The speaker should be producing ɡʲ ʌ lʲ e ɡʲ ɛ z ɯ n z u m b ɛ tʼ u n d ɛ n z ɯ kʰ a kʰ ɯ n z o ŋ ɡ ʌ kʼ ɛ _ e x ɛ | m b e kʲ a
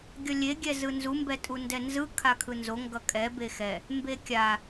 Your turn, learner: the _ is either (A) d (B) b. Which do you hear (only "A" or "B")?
B